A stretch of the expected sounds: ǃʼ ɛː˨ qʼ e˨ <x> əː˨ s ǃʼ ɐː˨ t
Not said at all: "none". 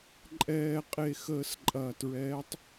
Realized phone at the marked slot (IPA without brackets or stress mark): x